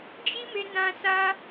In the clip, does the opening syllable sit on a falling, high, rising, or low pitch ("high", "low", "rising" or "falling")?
high